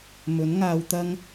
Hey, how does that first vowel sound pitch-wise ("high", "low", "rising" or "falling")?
rising